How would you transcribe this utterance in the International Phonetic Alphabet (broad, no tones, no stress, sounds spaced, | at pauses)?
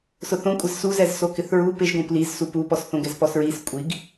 s ʊ θ õ kʷʼ ɪ z s u z ɛ z s o k ɪ θ ɹ u p ɪ ʒ ɡ õ p l i z s u p u p ɔ s θ õ ɡ ɛ z p ɔ s ɹ i s kʷʼ i ɡ